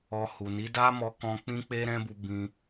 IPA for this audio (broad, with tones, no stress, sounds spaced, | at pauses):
ɔ˧ h u˨ n i˨˦ d a˦ m ɔ˧ k ɔ̃˧ k͡p ĩ˦ k͡p e˦ ɾ ɛ̃˦ b u˧ b ĩ˧